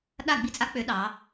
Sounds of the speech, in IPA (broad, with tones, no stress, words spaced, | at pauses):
ɗa˥˨ ɡ͡bi˦t͡sʼa˦k͡pø˨˥ ɗɑ˩˧